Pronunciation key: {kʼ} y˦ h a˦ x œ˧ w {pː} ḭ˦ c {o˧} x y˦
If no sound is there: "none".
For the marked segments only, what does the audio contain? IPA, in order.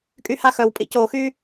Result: kʼ, pʼ, o˧

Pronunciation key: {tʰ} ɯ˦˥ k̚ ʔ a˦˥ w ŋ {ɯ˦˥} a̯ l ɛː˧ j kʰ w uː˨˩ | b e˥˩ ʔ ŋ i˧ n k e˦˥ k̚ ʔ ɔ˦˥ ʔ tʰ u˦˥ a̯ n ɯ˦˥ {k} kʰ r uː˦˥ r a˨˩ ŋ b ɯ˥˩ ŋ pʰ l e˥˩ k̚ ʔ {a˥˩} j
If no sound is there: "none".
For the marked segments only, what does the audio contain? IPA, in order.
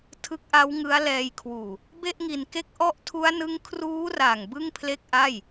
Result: tʰ, ɯ˦˥, ŋ, a˥˩

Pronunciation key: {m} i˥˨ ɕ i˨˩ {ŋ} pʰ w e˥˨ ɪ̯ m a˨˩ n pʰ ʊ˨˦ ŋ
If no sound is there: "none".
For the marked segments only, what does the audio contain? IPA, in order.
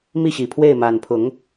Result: m, none

